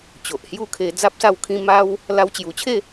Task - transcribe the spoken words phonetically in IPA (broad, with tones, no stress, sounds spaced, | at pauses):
t͡ɕ o˨ ʔ h j u˦ kʰ e˧ d͡z a˦ p̚ s a˥˧ w kʰ ĩ˦ m a˦ w | l a˧ w t͡ɕ j u˨˩ t͡ɕʰ e˥˧